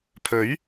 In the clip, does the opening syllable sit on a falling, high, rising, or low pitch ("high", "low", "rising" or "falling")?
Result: rising